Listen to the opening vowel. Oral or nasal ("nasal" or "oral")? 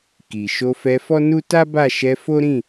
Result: oral